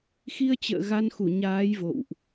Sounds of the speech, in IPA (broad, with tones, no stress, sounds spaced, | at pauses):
x i˧ ə̯ t͡ɕ ə̰ː˧˨ ɣ a˧ n x u˧˩ ɲ aː˨˦ j v o̰˧˨ w ʔ